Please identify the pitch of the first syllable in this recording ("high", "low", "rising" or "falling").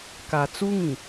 low